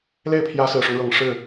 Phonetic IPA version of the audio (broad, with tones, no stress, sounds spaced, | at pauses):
l e˥˩ ɪ̯ pʰ j ä˧˥ s ɹ̩˨˩ ʂ ʊ˦ ŋ ɻ ɤ˨˩ ŋ ʂ ɻ̩˥˩